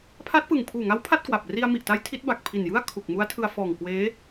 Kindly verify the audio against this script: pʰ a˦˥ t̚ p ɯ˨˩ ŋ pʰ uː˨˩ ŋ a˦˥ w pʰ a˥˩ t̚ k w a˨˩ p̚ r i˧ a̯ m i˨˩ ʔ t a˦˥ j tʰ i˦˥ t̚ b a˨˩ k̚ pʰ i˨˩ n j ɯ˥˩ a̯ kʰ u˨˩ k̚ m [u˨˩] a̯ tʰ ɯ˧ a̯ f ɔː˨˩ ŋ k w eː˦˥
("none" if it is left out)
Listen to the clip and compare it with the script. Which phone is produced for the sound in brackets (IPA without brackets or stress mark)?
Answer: u˦˥